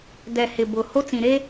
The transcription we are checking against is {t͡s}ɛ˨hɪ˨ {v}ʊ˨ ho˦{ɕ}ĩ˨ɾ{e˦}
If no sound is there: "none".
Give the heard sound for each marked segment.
d, b, t͡s, e˦

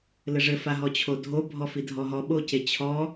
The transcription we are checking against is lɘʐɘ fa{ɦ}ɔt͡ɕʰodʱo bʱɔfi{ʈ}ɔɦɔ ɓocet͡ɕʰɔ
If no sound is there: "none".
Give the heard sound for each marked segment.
ɦ, dʱ

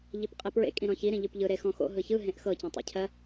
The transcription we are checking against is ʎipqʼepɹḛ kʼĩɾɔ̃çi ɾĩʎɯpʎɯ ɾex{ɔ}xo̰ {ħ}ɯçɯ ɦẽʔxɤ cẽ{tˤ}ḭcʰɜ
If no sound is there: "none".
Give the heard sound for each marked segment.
ɔ̃, ɦ, tˤ

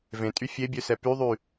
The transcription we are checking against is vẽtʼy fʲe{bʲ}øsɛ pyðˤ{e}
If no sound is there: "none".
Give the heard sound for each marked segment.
bʲ, y

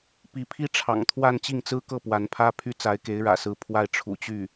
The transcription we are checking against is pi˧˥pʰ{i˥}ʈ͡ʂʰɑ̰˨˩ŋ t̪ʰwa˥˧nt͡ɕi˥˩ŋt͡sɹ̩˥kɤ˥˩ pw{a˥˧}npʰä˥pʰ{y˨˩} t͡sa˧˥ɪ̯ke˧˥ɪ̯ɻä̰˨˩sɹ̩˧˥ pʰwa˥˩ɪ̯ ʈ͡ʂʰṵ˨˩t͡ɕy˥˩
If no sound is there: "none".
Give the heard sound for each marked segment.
i˥, a˧˥, y˥

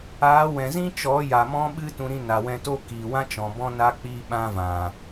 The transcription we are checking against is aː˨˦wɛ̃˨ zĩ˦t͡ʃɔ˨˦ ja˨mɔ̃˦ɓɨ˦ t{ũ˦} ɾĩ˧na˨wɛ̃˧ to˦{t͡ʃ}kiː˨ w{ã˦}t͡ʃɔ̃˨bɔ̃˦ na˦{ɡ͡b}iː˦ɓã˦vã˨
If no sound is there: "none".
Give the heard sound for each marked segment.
ũ˧, none, ã˦, k͡p

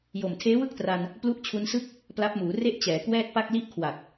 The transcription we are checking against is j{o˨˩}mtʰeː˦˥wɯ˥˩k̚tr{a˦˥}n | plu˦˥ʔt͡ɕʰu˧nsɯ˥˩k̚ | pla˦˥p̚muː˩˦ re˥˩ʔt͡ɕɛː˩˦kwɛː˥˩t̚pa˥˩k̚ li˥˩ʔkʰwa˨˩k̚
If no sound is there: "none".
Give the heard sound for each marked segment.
o˨˩, a˧

